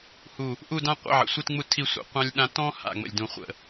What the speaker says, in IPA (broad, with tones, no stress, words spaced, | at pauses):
hu˧˩ | ʔu˥˧dã˥ qʷə̰˥˧ʕə̰˩˧sʷi˥˧tŋ͡mu˥˧ tʰi˥˧sʷə̰˧ qʷɑ̃˥lʲɗã˥ tɔ̃˥ ha̰˧˩ ŋ͡mə̰˧˩lʲdũ˧˩ χʷə̰˧˩